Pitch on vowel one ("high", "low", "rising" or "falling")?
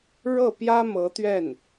falling